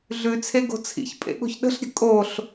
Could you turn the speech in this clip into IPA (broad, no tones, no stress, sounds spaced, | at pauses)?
ɮ ʉ t͡sʰ e ɡ o̤ t͡sʰ ḭ ç pʼ ḛ ɠ o̤ ç ɗ ə̤ ɬ ɾʲ ə̤ kʼ o ɬ